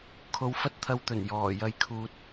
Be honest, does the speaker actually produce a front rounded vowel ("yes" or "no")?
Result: no